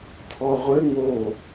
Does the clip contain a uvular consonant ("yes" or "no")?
yes